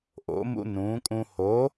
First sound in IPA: ʔ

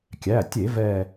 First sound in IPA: kʲ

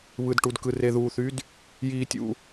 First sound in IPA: β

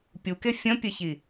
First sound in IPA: pʲ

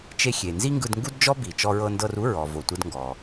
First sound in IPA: t͡ʃ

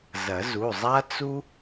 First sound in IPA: z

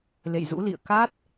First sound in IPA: l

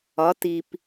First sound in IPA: ɒ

